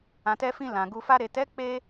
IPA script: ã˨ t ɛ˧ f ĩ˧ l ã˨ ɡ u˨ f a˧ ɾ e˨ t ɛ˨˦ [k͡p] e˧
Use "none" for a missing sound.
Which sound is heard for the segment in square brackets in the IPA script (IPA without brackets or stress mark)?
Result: k͡p